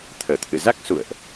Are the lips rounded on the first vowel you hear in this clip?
no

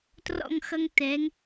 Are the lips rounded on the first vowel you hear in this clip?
yes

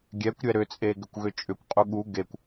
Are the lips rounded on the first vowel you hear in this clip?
no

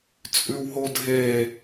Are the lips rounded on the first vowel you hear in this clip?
yes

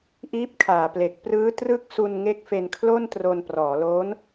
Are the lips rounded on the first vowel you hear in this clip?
no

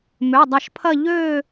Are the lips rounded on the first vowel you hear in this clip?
yes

